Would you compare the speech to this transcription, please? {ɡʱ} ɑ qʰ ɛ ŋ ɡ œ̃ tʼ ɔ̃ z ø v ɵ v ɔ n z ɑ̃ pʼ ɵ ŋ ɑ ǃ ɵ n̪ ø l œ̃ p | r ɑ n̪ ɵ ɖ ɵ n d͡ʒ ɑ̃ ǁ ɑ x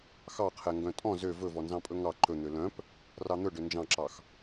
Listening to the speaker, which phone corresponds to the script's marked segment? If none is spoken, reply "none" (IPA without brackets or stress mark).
x